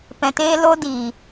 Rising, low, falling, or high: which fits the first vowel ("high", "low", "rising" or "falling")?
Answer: low